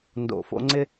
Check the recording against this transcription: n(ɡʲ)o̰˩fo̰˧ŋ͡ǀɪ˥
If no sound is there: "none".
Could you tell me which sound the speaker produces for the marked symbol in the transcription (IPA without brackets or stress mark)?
d